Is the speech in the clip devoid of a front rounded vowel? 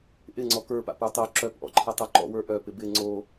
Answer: no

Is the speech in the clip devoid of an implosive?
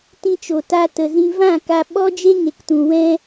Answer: no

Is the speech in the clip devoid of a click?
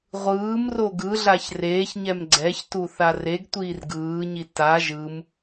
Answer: no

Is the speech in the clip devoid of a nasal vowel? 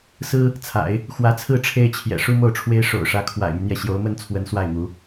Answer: yes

